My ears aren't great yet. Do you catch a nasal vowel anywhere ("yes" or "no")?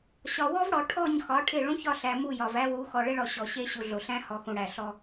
yes